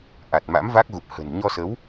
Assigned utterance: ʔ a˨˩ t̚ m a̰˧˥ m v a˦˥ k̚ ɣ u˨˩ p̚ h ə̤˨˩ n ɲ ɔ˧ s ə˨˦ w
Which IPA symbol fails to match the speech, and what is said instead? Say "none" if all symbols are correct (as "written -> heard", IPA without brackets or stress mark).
none